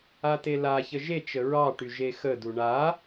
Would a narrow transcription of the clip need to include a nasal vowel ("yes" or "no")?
no